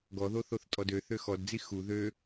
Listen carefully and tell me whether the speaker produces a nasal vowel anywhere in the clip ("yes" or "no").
no